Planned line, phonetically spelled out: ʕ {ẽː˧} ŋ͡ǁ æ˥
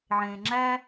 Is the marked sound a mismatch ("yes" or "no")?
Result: no